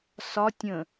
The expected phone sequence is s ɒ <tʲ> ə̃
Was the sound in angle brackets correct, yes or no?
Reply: yes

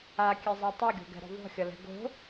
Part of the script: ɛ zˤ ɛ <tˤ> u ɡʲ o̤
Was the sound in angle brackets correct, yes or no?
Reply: yes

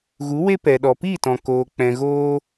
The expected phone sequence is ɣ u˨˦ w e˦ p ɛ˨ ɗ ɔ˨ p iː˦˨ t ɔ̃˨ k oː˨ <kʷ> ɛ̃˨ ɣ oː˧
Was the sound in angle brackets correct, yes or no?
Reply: no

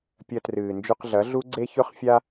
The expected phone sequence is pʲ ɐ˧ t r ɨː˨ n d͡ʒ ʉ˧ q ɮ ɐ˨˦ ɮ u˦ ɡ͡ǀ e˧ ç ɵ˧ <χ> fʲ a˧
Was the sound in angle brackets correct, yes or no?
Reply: yes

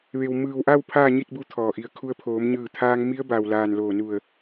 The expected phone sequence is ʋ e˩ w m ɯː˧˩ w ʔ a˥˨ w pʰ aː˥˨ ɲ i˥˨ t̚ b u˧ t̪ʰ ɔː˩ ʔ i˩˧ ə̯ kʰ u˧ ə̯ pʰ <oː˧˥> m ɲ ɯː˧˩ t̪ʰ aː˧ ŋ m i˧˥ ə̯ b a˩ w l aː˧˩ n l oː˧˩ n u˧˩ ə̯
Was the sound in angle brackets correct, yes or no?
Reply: no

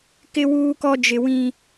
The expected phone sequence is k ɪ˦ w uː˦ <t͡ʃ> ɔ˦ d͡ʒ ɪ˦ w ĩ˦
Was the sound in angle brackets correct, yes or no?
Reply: no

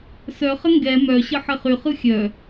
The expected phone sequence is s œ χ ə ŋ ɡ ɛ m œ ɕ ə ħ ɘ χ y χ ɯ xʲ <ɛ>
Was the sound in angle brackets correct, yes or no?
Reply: no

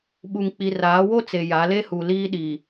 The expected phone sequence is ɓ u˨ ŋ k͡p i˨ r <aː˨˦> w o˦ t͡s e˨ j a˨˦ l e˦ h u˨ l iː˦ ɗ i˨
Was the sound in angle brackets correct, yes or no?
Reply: yes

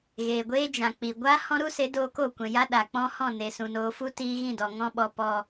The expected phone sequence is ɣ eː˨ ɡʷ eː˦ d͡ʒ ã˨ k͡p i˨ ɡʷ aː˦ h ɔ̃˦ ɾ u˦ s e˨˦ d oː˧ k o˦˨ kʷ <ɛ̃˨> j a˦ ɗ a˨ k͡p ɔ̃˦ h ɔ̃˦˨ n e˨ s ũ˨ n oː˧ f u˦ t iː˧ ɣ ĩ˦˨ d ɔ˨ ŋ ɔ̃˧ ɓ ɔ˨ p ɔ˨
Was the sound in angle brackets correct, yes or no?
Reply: yes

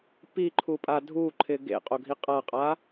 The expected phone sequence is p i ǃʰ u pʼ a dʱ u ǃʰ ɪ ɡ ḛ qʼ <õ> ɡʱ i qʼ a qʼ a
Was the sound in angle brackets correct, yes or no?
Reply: no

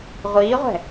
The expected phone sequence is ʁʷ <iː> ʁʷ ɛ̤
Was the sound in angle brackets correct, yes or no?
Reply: yes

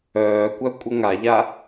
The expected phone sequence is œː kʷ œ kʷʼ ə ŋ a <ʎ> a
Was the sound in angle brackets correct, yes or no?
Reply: yes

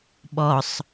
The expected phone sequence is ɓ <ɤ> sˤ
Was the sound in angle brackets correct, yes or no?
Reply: no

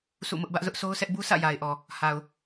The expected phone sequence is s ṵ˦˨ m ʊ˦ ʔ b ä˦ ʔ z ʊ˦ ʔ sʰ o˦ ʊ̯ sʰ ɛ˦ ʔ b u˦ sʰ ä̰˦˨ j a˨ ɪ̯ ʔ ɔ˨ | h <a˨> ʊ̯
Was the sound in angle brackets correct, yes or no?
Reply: yes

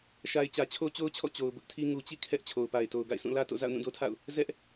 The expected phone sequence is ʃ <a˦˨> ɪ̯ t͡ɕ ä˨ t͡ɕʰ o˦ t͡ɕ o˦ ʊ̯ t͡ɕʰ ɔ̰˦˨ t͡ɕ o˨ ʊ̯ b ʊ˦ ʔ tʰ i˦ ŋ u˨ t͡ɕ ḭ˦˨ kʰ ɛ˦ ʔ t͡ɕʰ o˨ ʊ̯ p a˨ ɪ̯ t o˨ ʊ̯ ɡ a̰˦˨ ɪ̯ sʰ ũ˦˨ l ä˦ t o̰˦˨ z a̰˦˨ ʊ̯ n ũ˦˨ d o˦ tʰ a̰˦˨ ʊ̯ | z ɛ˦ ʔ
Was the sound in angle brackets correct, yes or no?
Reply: no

